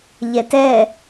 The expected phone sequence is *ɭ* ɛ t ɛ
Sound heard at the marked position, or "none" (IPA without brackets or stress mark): ʎ